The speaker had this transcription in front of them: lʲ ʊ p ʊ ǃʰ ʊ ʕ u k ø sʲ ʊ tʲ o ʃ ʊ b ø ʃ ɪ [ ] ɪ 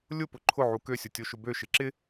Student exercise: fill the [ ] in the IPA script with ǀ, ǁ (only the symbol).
ǁ